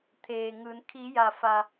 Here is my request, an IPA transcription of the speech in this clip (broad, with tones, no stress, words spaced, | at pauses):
t̪ʰeː˩ŋɯː˩˧n kʰi˩˧ja˩fa˩